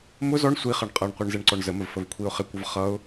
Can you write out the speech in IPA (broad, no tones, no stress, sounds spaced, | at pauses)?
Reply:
m ʊ z ɔ ɳ sʷ i χ ʌ ɳ qʼ ʌ ɳ qʷ ɛ ɳ z ɛ ɳ ǀ ɔ ɳ z ə m ə v f ə v kʷʰ i ʊ̯ χ ɪ kʷ ʌ v χ ʌ ʊ̯